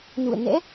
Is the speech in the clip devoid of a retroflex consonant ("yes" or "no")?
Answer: yes